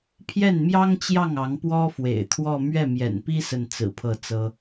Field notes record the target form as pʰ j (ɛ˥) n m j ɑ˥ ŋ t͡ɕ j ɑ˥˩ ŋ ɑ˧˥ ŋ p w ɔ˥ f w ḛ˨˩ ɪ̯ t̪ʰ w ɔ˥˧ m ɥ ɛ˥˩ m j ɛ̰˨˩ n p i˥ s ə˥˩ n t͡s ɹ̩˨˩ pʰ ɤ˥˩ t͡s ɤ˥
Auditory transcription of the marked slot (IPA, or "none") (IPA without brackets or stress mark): ɛ˥˩